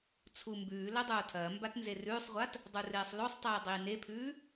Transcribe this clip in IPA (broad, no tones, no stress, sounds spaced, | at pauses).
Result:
t͡sʰ u m b ʉː l ɐ dˤ oː tʰ ɐː m b a t n z e r ʉː sˤ ʁʷ a t | dˤ u r eː sˤ l o sˤ tˤ iː dˤ iː n e pʰ ʉː